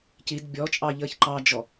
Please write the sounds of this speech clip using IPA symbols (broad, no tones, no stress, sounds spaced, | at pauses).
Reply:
c i d bʲ ɔ t͡ʃʼ ɑ ʎ əː ç ǃ ɑ d͡ʒ ɔ